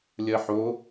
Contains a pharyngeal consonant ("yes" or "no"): yes